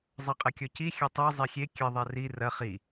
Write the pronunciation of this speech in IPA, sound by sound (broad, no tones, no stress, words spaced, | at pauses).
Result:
zˤɐqʼɘkʲɔci xʲɐtˤi zˤixʲe kʲɘ ðˤari rɐ χi